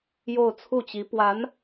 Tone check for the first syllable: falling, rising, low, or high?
falling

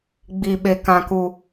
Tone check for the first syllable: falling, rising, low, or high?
low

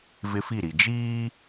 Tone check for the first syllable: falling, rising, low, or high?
high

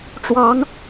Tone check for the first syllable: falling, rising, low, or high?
rising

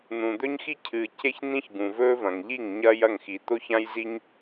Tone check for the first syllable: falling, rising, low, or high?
low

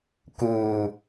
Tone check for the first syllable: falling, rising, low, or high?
low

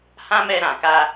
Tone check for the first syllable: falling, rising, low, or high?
high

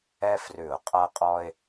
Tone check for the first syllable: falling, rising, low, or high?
high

